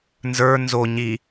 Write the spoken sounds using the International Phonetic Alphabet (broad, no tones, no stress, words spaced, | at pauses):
nzə˞ nzo ɲi